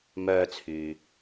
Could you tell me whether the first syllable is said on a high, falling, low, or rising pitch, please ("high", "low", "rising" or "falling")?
high